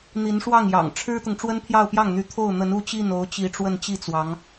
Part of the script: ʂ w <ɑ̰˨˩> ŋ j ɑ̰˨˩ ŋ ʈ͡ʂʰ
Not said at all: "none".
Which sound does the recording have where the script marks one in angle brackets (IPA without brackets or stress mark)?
ɑ˥˩